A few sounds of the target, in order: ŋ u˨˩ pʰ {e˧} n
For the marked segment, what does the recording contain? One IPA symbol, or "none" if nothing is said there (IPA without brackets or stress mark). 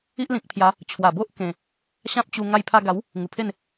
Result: e˥˧